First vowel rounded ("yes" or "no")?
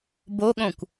yes